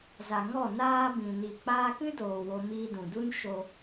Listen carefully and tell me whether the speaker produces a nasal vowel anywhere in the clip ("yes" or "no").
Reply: yes